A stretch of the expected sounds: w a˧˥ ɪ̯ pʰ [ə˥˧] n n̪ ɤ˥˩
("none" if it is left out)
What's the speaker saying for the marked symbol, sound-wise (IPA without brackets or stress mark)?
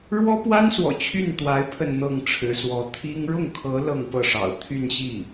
ə˥˧